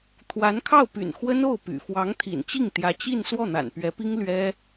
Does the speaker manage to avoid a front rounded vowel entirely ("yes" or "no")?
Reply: no